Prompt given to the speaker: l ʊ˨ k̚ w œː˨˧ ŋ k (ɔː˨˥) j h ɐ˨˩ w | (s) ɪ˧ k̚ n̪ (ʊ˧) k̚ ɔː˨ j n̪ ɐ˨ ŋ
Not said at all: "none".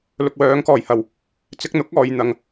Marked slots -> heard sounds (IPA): ɔː˨˩, t͡s, ʊ˨˥

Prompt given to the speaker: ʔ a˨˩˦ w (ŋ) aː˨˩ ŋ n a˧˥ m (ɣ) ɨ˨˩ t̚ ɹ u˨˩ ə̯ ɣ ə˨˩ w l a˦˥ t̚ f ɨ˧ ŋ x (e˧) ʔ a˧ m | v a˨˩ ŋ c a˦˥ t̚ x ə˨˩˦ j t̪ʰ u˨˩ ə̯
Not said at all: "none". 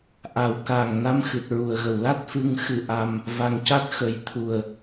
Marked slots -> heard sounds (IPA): k, x, ɨ˧

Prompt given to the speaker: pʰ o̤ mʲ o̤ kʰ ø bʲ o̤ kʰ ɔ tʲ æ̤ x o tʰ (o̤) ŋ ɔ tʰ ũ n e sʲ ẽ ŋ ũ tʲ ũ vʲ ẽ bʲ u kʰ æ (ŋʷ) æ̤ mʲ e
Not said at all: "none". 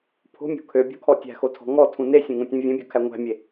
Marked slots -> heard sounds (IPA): ɔ̤, ŋʷ

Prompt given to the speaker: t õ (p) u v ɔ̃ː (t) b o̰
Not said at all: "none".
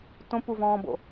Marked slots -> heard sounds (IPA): p, none

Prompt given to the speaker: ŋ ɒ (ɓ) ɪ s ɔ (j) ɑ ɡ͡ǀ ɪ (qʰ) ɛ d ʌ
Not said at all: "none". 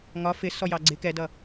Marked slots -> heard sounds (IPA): f, j, k

